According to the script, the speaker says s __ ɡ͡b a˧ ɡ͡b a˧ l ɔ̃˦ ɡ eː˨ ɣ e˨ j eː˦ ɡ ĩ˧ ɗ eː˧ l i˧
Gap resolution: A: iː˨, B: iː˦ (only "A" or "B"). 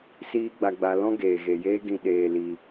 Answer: B